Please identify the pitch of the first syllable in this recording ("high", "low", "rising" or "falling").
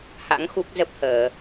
rising